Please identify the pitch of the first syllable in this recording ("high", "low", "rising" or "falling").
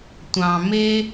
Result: low